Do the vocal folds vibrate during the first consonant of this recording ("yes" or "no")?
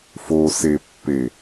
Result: no